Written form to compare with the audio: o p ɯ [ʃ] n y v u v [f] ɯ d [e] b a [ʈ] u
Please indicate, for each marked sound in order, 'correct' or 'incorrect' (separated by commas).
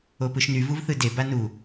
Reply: correct, incorrect, correct, incorrect